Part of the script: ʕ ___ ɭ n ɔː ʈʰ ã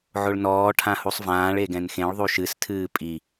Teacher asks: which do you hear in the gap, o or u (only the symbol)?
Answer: o